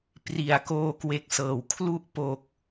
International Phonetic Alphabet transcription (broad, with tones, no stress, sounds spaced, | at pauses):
p r i˨˩ a̯ k oː˧ k w e˦˥ k̚ s ɤː˨˩ w kʰ l u˥˩ ʔ p o˨˩ k̚